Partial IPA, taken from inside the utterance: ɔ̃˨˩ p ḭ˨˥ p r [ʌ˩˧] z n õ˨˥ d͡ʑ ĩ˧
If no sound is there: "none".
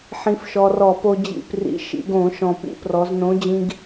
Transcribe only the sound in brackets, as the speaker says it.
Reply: ɔ˩˧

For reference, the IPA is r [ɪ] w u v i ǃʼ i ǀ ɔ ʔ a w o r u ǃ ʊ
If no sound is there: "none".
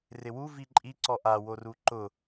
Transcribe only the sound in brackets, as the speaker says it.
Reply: ɪ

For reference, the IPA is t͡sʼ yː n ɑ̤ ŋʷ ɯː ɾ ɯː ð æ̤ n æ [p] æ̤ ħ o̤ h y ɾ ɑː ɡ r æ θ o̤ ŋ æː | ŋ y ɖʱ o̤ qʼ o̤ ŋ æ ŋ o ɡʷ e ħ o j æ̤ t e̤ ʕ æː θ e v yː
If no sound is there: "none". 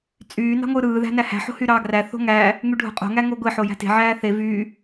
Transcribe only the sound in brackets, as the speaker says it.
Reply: h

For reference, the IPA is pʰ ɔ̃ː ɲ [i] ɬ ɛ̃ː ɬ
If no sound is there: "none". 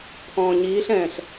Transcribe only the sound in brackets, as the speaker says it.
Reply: iː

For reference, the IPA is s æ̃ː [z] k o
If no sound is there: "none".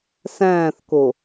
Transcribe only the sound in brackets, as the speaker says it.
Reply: θ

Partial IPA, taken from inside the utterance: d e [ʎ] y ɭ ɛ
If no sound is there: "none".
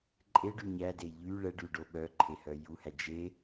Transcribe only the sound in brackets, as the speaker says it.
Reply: ʎ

